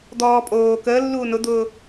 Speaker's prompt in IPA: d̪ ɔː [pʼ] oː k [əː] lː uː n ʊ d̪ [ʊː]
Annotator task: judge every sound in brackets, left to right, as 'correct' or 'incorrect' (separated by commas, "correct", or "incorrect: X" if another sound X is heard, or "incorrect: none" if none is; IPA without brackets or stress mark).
correct, correct, correct